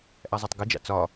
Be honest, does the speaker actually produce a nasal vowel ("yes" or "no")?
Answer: no